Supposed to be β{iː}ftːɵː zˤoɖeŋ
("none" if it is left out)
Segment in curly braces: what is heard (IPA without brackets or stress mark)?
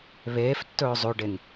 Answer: eː